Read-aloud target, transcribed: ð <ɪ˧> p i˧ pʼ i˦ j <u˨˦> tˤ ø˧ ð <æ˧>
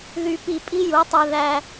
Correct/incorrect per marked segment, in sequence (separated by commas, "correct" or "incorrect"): incorrect, correct, correct